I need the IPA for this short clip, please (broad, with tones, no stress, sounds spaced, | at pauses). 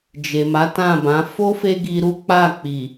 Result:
d͡ʒ e˨ m a˨˦ t ã˦˨ b ã˨˦ f o˦ f e˦ ɡ i˧ ɾ u˦ k͡p a˦˨ k͡p i˨